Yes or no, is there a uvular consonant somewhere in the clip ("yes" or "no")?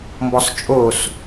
no